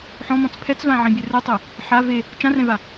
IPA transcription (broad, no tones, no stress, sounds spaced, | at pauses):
ħ ɔ̃ m ɔ̃ t͡s pʰ ɛ t͡s v ã ʕ ĩ bʲ ɛ r ɯ tˤ e | ħ a v e | t͡ʃ ã r ɛ̃ v a